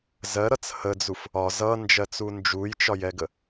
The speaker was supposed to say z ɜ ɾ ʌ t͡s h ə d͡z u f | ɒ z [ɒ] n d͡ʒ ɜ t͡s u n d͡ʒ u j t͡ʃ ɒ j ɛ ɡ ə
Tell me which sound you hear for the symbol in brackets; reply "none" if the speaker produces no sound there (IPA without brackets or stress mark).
ʌ